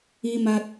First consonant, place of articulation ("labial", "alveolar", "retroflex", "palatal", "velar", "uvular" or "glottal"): labial